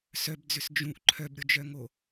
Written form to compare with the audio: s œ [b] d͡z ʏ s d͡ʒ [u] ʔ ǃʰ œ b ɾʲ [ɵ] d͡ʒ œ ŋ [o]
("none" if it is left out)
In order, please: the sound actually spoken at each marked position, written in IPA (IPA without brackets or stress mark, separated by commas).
b, ũ, o, o